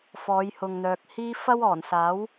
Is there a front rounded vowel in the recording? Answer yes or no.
yes